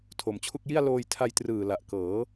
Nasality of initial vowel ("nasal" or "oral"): oral